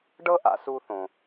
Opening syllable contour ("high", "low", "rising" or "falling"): high